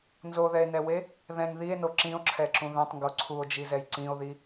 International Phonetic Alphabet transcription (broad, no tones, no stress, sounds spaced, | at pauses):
n z o ð ɛ e̯ n ɛ w e | ð ɛ̃ ŋ ð i e̯ n o ǁ ĩ o̯ ǁʰ ɛ ǁ ũ ð ɛ̃ tˤ ŋ ɡ o ǀʰ u o̯ d͡ʒ i z ɛ j ǀ ĩ o̯ ð i